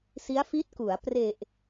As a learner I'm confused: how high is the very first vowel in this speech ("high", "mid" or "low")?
high